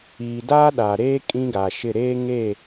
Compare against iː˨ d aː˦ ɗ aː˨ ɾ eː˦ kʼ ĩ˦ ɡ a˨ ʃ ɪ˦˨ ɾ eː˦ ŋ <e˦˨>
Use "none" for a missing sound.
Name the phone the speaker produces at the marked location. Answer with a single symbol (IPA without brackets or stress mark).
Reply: e˦˨